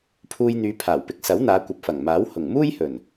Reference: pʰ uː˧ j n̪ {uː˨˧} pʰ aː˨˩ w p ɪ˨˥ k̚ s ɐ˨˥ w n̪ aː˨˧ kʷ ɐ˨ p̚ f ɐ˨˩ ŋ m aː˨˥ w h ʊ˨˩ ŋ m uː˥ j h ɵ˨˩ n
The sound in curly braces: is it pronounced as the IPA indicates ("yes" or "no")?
no